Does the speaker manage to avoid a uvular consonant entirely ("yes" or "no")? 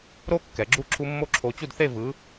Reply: yes